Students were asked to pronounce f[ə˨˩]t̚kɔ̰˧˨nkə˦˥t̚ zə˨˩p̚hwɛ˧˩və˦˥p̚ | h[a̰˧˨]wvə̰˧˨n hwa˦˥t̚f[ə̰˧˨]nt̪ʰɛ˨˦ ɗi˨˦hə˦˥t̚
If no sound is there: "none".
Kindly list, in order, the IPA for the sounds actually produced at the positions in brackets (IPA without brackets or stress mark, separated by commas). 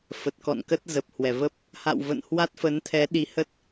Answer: ə˨˩, a̰˧˨, ə˨˦